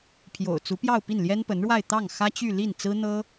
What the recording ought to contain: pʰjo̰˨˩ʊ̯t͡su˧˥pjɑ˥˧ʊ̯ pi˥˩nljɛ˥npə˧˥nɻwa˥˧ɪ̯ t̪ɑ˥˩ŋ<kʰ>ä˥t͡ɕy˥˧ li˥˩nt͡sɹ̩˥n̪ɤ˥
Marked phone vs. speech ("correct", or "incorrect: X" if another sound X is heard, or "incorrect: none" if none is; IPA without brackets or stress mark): incorrect: x